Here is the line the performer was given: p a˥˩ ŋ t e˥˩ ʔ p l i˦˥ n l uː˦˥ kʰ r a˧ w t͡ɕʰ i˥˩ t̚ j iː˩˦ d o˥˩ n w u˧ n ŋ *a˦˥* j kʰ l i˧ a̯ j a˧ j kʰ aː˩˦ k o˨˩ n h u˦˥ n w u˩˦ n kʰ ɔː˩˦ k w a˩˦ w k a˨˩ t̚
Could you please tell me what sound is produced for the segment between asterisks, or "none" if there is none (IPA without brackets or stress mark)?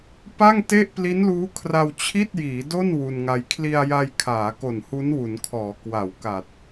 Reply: a˦˥